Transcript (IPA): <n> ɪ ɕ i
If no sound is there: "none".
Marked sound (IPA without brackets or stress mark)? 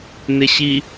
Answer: n